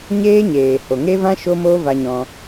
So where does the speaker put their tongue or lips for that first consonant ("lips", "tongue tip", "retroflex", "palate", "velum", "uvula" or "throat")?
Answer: palate